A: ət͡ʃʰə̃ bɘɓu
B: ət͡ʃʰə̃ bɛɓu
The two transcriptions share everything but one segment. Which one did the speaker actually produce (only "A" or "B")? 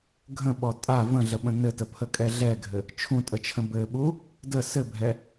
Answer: A